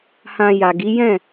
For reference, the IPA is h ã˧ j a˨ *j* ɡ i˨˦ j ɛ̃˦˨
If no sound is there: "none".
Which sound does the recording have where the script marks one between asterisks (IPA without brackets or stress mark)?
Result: none